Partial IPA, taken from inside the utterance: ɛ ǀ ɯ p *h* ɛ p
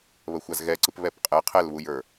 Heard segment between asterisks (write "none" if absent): β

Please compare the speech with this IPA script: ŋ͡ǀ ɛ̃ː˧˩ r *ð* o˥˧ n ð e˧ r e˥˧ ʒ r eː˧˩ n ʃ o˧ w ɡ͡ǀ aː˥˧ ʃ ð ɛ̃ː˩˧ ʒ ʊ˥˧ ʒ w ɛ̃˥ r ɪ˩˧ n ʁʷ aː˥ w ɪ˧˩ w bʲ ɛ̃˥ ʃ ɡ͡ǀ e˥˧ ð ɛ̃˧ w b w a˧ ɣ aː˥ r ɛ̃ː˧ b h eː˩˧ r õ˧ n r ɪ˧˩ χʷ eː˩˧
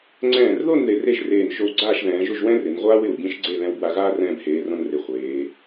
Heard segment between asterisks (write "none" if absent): ð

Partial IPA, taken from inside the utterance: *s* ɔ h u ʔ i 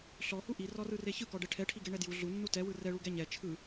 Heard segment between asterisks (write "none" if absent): ɬ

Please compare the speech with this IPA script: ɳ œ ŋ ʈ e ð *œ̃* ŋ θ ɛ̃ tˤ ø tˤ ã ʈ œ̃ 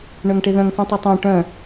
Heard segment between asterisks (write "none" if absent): œ̃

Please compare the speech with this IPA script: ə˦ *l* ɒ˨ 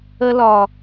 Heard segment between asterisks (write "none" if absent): l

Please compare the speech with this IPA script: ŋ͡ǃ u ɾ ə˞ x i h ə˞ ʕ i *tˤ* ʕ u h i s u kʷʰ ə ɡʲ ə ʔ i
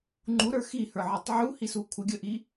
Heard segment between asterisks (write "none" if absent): tˤ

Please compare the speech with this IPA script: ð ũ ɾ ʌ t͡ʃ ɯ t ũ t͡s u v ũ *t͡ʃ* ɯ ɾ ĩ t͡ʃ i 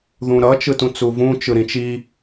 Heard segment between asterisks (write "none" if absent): t͡ʃ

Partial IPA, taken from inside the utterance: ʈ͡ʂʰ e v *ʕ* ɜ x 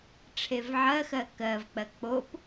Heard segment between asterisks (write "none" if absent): ʕ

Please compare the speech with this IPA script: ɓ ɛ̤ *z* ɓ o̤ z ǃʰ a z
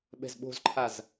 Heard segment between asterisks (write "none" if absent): z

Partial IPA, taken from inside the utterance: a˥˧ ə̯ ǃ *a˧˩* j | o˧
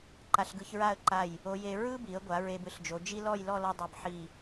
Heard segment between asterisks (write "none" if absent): a˧˩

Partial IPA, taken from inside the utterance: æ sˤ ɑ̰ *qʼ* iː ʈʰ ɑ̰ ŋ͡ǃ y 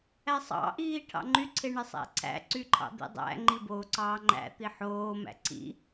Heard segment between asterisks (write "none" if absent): ʔ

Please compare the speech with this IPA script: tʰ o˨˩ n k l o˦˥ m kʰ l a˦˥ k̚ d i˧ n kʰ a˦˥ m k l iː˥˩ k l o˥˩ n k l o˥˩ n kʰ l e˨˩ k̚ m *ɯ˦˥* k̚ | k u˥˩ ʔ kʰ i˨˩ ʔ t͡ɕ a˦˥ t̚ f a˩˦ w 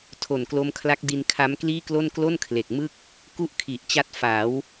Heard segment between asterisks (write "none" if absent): ɯ˥˩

